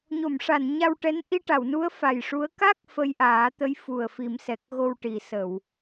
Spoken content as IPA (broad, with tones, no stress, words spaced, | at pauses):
ɲo˨˩˨mʂa˨˩˨n ɲa˧wʈɛ˧˥n ʔi˧ʈa˨˩˨wnu˧˥ə̯ fa˨˩jʂu˧˥ə̯ ka˦˥k̚ fə˧jʔaː˨˩˦t̪ə˧˥j fu˨˩ə̯fi˨˩˦msɛ˨˩k̚ɣo˧w ʈi˨˩˦sə˨˩˨w